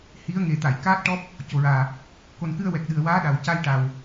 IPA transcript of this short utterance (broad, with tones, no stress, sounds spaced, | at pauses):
h i˧˥ ə̯ ŋ e˨˩ t̪ a˨˩˨ j k aː˦˥ t̚ ʈ ɔ˦˥ p̚ | c o˨˩ ɹ aː˨˩ | k o˨˩ n k ɨ˧ ə̯ w ɛ˨˩ k̚ ɗ ɨ˨˩ ə̯ w aː˧˥ ɗ a˨˩ w c a˧ j ʈ a˨˩ w